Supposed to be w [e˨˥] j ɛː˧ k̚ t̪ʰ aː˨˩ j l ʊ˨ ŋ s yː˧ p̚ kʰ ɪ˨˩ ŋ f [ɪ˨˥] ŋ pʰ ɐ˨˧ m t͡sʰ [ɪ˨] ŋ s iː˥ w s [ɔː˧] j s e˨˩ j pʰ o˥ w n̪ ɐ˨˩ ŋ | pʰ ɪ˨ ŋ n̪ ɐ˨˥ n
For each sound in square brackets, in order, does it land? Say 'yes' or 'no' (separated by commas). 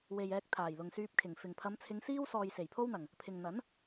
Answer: no, no, no, yes